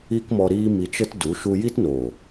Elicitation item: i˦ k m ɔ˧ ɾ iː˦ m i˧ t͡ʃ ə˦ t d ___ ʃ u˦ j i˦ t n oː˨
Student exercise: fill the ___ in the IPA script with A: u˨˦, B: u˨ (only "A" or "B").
A